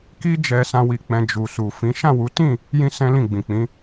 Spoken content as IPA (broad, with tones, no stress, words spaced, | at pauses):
ki˦d͡ʒɛ˧sã˧ wi˧k͡pɛ̃˧ d͡ʒu˨su˨fĩ˨˦ ʃã˦˨wu˨˦tĩ˦˨ | jĩ˦sɛ̃˦lĩ˦˨ ɡ͡bĩ˨ k͡pĩ˨˦